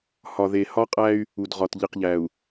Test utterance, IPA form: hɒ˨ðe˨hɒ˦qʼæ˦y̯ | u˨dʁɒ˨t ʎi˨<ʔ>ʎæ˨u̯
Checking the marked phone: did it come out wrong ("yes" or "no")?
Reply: yes